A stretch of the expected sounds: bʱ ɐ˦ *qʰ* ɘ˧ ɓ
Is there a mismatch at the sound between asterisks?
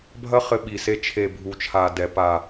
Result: yes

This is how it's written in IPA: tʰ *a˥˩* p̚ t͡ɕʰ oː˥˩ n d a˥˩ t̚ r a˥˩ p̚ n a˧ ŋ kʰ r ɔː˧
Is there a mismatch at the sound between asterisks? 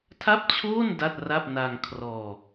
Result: no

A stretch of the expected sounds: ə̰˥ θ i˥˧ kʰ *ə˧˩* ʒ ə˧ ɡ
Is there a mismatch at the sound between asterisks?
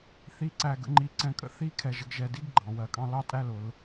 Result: yes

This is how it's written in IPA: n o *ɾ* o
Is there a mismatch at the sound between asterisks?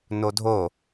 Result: yes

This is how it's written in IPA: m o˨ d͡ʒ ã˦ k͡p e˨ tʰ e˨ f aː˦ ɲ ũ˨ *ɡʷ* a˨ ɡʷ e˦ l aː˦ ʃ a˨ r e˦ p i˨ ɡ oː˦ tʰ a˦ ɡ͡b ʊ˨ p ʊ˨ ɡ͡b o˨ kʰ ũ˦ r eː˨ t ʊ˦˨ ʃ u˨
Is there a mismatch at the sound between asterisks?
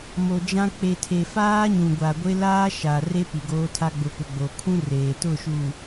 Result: no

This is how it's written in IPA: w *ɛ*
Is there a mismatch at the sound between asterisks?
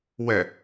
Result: no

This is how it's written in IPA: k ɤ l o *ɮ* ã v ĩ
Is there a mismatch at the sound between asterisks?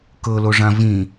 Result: yes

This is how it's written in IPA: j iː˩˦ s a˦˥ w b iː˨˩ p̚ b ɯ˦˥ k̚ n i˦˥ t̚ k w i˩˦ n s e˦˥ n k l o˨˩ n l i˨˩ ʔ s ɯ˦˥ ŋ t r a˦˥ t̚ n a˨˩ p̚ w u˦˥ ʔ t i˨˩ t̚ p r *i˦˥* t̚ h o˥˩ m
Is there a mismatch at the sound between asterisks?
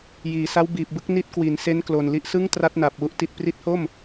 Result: no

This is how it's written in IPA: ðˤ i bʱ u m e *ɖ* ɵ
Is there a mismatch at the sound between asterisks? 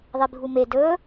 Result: yes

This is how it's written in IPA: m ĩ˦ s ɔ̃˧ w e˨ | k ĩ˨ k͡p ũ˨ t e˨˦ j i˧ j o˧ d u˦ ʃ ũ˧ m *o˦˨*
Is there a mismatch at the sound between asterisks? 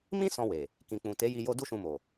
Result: yes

